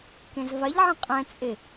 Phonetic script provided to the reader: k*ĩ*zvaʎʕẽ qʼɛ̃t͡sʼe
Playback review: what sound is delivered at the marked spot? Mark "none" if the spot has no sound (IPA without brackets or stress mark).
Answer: ẽ